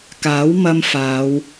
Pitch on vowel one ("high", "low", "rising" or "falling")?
rising